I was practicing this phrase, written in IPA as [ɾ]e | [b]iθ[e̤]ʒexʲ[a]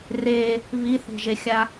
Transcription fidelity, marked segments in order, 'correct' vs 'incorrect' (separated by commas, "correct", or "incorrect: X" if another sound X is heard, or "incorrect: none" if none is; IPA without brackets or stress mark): incorrect: r, incorrect: β, correct, correct